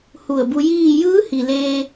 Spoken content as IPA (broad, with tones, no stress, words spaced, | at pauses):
hu˧˩ə̯bu˧jiː˥˨ jɯː˧˥ hi˩leː˧